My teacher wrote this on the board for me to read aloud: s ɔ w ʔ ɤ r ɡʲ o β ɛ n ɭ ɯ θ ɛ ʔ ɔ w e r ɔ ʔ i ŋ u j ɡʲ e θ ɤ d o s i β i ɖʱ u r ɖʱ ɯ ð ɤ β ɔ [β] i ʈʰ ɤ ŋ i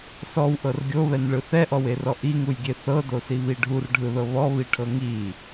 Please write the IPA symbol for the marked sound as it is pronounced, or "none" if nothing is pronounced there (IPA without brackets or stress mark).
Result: β